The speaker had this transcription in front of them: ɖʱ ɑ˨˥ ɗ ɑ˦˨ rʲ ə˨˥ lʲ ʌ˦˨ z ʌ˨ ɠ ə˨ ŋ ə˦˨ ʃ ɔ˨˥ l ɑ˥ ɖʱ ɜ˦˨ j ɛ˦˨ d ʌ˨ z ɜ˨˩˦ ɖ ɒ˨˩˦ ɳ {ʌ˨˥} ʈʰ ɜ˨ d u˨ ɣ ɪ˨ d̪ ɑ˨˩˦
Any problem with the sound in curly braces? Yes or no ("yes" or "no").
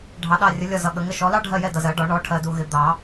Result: yes